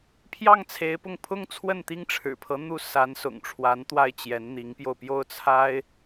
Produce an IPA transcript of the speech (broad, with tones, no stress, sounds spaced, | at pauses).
pʰ j ɑ˥˩ ŋ t͡sʰ e˧˥ ɪ̯ p ʊ˥˩ ŋ pʰ ʊ˥ ŋ t͡sʰ w ə˥˩ n t̪ i˥ ŋ ʈ͡ʂʰ ɻ̩˨˩ pʰ ɤ˧˥ n̪ u˥˩ s a˧˥ n s ʊ̰˨˩ ŋ ʈ͡ʂʰ w a˧˥ n t̪ w a˥˩ ɪ̯ t͡ɕ j ɛ˧˥ n n̪ i˧˥ ŋ p j o˧ ʊ̯ p j o˥˩ ʊ̯ t͡sʰ a˥ ɪ̯